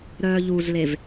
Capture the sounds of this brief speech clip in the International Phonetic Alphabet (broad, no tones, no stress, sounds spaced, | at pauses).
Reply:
ɾ œː ʎ u z l e v